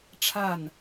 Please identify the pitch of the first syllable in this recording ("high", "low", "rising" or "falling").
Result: falling